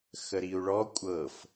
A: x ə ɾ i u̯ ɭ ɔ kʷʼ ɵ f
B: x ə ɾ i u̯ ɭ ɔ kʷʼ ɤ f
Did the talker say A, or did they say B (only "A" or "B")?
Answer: B